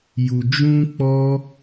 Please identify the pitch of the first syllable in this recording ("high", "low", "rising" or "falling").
low